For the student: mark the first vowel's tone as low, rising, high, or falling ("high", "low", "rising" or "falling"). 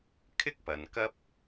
high